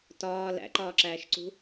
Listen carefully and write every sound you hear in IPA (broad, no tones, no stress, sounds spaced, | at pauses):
t ɒː l æ̰ ǃ ɒː ǁ æː ʃ ǀ ṳ